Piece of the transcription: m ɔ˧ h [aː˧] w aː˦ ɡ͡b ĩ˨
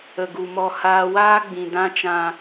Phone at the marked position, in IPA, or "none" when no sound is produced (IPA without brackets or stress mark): aː˧